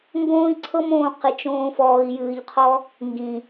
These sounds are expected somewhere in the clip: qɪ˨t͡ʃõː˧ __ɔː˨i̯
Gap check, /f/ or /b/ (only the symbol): f